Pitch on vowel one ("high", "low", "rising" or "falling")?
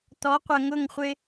rising